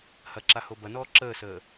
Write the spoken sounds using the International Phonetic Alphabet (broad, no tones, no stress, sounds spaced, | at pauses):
h ɐ ǁ a h o b ɐ n ɔː ǁ əː s əː